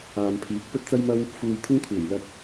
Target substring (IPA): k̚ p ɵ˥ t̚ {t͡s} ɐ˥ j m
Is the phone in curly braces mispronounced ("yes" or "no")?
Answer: no